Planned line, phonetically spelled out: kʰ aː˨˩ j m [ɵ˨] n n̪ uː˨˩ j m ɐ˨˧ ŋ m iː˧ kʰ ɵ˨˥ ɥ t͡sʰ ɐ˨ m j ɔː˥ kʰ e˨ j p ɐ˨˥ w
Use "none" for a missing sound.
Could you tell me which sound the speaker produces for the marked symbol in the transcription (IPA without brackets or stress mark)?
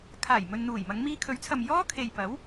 ɵ˨